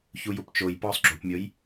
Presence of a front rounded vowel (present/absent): absent